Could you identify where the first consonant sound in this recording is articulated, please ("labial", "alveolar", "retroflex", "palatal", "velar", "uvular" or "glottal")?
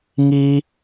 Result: velar